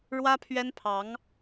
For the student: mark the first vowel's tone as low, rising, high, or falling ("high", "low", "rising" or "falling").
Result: high